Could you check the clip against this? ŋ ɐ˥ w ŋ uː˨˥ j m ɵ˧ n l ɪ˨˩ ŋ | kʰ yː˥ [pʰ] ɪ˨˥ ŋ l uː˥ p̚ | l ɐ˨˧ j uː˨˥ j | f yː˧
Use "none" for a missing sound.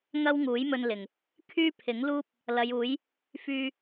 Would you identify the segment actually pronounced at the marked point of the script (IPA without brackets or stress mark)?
pʰ